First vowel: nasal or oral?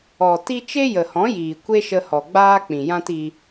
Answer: oral